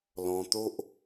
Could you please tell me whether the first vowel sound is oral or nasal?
nasal